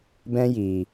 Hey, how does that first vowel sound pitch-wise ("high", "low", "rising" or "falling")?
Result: high